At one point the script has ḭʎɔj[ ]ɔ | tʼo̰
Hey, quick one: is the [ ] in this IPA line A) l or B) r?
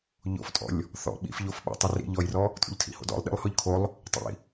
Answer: B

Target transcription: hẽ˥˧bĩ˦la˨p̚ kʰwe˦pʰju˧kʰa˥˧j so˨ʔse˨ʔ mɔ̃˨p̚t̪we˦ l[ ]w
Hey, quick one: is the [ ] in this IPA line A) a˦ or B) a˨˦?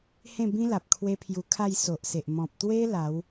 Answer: B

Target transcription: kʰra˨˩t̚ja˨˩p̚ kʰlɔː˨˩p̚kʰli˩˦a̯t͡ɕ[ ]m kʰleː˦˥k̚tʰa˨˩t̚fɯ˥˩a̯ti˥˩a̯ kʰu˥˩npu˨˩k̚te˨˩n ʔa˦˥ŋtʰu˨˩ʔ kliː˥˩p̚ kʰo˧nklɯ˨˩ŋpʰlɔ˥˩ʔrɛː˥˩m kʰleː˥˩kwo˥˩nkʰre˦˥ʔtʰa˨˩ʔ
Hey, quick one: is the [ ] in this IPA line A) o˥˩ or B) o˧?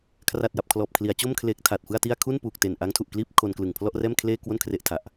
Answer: A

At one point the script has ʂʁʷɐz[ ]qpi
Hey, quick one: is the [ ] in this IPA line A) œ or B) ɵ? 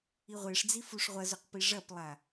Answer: B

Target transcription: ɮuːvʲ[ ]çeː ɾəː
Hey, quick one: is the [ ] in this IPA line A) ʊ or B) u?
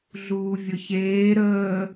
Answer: A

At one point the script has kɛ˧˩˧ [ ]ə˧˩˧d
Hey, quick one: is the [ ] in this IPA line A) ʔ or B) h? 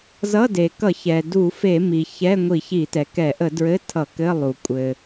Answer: A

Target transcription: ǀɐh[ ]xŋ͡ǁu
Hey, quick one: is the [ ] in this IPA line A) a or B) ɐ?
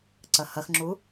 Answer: B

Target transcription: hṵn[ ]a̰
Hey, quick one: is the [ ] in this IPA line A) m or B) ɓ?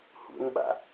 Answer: B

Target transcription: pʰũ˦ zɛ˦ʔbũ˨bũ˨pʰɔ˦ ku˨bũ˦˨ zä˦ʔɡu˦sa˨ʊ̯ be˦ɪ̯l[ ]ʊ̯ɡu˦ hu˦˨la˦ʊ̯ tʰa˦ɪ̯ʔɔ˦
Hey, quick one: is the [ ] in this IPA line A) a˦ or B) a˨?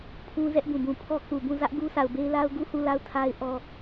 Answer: A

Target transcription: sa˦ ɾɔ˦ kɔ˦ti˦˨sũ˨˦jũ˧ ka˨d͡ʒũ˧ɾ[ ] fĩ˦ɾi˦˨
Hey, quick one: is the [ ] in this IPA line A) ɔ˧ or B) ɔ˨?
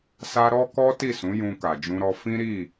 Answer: A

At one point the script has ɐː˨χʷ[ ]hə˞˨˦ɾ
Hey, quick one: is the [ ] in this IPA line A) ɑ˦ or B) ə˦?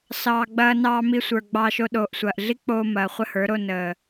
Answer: B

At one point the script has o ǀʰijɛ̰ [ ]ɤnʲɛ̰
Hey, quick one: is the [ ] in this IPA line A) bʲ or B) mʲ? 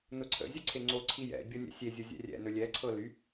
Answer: A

